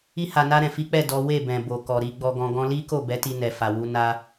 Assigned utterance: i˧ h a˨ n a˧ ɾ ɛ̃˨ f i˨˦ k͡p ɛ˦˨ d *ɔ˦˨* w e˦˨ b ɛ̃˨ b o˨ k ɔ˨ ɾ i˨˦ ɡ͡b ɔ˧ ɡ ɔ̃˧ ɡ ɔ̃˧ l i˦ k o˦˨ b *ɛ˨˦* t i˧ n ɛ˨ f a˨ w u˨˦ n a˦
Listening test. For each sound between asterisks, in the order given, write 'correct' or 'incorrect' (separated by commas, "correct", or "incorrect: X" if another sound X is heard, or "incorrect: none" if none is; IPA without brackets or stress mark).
incorrect: ɔ˨˦, correct